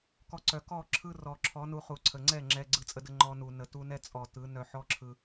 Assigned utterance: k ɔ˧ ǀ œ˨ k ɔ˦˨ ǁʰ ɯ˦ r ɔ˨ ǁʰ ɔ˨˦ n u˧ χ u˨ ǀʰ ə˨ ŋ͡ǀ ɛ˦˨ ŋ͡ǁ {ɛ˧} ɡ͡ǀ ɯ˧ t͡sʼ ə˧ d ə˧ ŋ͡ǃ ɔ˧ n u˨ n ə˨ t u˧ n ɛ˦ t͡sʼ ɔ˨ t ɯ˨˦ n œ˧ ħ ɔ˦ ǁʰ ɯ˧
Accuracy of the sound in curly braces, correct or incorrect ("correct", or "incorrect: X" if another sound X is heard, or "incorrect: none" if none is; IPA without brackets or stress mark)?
correct